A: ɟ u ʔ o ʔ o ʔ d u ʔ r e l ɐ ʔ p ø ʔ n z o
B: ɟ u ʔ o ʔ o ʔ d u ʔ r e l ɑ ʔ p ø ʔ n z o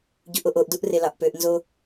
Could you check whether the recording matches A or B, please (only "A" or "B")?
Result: B